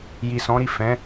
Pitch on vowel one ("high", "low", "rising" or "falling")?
low